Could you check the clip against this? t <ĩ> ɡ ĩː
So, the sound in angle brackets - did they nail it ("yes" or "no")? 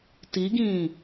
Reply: no